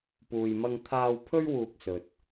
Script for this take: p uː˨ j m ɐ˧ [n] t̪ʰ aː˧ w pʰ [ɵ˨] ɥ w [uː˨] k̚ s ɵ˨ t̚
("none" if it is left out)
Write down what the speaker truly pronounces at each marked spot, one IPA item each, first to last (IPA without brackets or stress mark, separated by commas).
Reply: ŋ, ɵ˥, uː˨